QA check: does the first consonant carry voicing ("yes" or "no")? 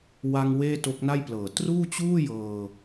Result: yes